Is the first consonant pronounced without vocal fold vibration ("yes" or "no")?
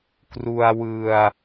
yes